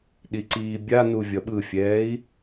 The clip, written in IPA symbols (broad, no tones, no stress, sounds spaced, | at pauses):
ɗ i ǀ iː bʲ a n u vʲ ʌ ɓ ɯ fʲ ɛː i̯